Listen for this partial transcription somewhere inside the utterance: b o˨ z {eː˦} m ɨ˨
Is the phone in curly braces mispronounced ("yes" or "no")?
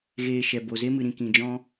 yes